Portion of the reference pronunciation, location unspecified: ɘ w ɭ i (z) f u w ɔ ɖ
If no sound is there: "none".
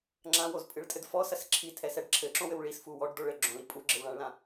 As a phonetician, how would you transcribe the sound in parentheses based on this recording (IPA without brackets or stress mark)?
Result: s